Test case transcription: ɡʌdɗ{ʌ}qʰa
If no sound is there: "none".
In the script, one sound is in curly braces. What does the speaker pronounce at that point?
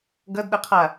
ʌ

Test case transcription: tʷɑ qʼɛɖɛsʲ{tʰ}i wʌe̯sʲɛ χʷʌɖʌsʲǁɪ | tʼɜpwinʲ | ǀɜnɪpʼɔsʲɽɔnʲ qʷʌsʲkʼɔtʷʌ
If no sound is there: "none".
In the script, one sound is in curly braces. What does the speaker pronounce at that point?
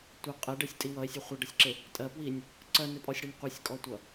tʼ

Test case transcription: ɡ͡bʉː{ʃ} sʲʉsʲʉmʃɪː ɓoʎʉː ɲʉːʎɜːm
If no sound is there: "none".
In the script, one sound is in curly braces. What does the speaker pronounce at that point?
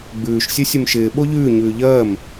ʃ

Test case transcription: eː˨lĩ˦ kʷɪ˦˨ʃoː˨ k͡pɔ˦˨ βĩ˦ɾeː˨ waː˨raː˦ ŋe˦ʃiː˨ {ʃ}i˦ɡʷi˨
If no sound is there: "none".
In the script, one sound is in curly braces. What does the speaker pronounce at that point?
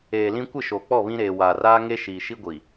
ʃ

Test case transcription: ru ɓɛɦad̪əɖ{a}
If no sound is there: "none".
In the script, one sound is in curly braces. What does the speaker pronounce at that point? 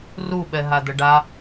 a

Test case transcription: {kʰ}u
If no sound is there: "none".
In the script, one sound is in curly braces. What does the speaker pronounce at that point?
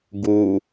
ɡ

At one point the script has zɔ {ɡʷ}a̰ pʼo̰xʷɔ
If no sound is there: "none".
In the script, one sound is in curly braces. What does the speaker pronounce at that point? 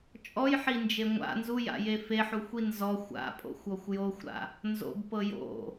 xʷ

